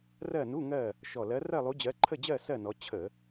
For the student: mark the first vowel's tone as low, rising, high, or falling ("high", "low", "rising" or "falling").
falling